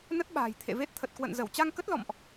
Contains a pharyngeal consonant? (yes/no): no